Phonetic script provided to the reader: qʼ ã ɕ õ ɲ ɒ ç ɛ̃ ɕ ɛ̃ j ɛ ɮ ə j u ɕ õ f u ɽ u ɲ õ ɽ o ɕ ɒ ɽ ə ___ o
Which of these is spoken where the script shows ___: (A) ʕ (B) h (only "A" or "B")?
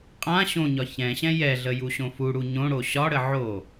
A